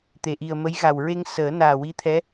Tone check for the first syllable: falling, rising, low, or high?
low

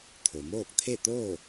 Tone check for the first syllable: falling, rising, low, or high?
low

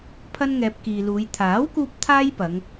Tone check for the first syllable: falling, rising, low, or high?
high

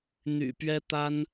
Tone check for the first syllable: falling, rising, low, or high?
low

